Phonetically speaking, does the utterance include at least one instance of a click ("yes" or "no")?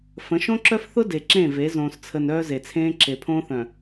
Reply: yes